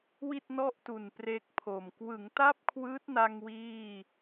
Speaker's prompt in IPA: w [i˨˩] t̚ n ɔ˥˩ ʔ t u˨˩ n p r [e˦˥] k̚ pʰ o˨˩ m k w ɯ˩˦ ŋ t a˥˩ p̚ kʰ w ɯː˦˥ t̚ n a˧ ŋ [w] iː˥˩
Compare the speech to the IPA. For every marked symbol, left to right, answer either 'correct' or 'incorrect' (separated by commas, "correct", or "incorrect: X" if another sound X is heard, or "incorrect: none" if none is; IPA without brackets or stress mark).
incorrect: i˥˩, incorrect: e˥˩, correct